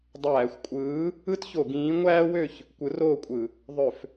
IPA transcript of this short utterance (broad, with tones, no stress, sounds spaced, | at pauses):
dˤ æː˧˩˧ xʷ kʷʼ ɯː˨˥ | ɯ˥ t ç o˧˩˧ ɡ ĩː˨˥ ŋʷ æː˥ w ø˥˩ ç | kʷ ɯ˨˥ r oː˥˩ kʷʼ ɯ˧˩˧ | ðˤ ø˧˩˧ f